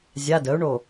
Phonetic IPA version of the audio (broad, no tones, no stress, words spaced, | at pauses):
zʲa dəːu̯ɳo